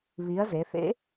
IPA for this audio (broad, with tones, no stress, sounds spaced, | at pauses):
β i˩˧ ɐ̯ z e˩˧ θ ḛ˧˥